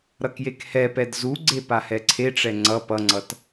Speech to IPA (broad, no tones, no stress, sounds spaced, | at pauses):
ɾ ʌ k j e k h ɛ p ɛ d z u ɡ͡ǀ e p a h ɛ ǀʰ e ʈ͡ʂ ɛ ŋ͡ǀ ʌ p ʌ ŋ͡ǀ ʌ t